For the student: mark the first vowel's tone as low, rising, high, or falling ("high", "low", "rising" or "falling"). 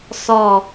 falling